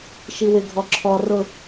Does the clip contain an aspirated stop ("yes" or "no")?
yes